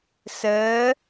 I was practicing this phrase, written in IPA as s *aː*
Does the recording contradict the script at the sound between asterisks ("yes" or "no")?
yes